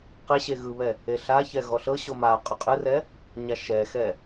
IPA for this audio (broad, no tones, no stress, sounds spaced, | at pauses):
q e ɕ e ɣ ɯ β ɛ | e ɬ a ç ɛ ɣ ɔ ɬ ɤ ɕ o m a qʼ o qʼ ɯ r ɛ | ɲ a ʃ ɛ x ɛ